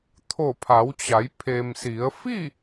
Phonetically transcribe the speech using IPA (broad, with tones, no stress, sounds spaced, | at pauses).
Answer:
t̪ʰ o˧˩ pʰ a˩˧ w t͡ɕ a˩˧ j pʰ e˩ m s i˩˧ ə̯ f i˥˨